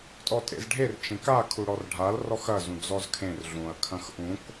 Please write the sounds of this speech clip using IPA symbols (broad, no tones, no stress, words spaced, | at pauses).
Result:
tʼɔtʼḛzɖʱer t͡ʃẽka kʰuɽɔrɖʱal rɔxɐ zũd͡zɔzkʰẽr ɮũɐ̯ kʰɐ̃xʔũk